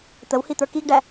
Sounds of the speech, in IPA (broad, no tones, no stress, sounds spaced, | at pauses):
t̪ ə w h i t̪ ə˞ k i ɡ ɖ æ